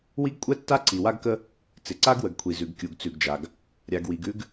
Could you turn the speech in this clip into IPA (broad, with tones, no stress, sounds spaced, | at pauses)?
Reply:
w i˦ ɡ kʷʼ ɛ˦ tː a˦ ǀ i˨ w a˦ ɡ k ə˦ | t͡s ɪ˨ ǀ a˦ ɡ w ə˨ ɡ kʷʰ i˨ z ʉ˨ ɡ kʲ u˨ ɡ t͡s ʉ˨ ɡ d͡ʒ a˨ ɡ | ɾʲ a˨ ɡ w i˨ ɡ ʉ˦ ɡ